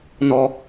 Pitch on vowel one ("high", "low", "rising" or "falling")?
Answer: low